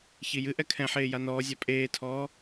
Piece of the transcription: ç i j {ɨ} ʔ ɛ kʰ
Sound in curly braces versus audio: correct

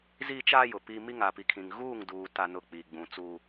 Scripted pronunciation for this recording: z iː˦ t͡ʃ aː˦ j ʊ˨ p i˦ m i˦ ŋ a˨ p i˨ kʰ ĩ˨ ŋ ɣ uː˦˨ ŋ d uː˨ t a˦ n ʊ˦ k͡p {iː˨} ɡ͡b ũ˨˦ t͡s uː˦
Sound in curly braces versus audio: incorrect: i˨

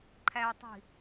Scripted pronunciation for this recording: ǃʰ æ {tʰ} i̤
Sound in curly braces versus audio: incorrect: tˤ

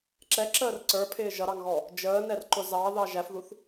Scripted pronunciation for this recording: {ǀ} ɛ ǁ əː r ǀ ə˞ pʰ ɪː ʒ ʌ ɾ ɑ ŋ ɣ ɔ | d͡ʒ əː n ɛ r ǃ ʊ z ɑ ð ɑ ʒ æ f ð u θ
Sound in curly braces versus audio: incorrect: ǁ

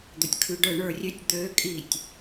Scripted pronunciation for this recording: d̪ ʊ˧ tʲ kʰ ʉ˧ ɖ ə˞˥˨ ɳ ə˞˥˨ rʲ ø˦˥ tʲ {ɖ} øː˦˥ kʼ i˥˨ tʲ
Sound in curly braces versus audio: incorrect: d̪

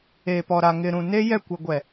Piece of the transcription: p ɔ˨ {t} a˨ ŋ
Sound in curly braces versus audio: incorrect: ɾ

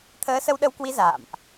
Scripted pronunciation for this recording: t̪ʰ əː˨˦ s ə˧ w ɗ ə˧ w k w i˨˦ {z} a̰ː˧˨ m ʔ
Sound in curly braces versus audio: correct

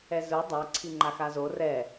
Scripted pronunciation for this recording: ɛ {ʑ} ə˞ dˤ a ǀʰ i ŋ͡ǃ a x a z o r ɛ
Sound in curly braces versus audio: incorrect: z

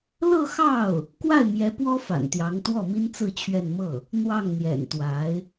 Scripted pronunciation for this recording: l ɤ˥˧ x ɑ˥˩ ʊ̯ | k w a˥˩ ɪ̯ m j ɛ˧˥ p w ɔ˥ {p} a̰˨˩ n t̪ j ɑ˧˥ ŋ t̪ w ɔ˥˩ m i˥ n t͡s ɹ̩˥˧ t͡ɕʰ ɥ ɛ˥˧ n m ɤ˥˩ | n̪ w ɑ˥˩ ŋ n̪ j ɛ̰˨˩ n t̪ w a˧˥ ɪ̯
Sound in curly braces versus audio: incorrect: f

